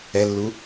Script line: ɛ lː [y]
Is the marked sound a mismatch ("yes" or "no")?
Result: yes